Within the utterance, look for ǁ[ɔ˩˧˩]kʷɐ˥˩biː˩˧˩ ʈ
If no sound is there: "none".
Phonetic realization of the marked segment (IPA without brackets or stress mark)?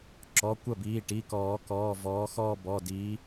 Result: ɔ˩˧˩